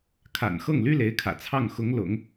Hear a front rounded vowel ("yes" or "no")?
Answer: yes